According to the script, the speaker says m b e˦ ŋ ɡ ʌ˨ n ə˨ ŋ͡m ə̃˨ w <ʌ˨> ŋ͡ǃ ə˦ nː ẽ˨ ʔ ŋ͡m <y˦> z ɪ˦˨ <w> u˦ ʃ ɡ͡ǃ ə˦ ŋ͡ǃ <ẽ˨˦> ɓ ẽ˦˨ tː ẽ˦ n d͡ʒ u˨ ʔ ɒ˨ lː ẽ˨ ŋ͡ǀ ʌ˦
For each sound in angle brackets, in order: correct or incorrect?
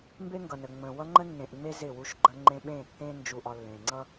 incorrect, incorrect, correct, incorrect

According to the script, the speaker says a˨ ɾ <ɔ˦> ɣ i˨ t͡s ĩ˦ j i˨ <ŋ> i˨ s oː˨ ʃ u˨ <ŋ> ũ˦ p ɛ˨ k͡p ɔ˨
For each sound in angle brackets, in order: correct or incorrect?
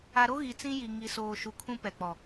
incorrect, correct, incorrect

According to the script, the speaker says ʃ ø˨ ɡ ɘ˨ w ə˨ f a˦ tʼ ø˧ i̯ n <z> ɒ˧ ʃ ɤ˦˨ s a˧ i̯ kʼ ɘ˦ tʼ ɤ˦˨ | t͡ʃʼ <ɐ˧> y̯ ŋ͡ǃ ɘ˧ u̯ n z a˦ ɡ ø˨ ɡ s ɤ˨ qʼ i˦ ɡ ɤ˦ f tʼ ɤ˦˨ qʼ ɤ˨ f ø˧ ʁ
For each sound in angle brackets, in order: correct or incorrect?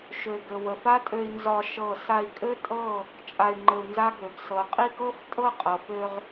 correct, incorrect

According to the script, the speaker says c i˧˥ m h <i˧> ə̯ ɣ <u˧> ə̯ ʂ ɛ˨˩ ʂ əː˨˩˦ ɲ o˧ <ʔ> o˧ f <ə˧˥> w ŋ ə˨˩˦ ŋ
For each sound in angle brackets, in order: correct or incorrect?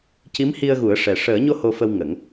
correct, incorrect, incorrect, incorrect

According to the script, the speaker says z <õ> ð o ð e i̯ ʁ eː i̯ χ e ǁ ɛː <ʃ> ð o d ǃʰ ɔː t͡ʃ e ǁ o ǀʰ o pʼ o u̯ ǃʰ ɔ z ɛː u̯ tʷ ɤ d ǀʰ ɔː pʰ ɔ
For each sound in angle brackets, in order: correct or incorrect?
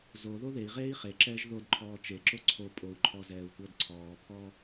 incorrect, incorrect

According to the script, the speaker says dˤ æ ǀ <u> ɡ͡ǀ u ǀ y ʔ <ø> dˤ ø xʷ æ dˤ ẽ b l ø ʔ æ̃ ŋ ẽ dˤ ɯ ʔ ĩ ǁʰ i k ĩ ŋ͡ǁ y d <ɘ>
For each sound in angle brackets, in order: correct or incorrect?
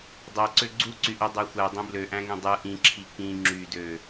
incorrect, correct, incorrect

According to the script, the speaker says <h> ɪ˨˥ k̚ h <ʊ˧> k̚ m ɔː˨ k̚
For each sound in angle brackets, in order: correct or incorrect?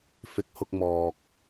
incorrect, correct

